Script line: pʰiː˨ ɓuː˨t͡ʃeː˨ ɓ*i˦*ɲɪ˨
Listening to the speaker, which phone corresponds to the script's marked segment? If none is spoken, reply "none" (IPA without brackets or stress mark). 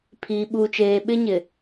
ɪ˦